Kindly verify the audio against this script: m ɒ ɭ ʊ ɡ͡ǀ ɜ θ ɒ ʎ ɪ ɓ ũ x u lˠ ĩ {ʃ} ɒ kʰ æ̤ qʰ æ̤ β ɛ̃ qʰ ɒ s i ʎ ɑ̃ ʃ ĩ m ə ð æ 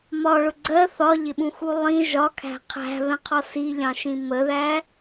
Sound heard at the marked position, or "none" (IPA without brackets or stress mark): ʒ